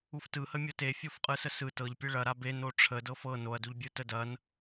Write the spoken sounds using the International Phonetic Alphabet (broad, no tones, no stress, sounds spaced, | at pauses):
u f t ɯ h ə mʲ ɤ t e fʲ o f qʼ ɯ s ə s ɯ t ɤ ʎ pʲ ɯ ɭ ɐ ɾ a b e n o ʈ͡ʂʰ ə d ɤ f ɤ n o ɐ̯ d u ʎ bʲ ɯ t ə d ɐ n